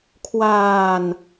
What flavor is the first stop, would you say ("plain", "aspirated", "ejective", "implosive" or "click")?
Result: aspirated